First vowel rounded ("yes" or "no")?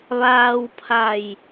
no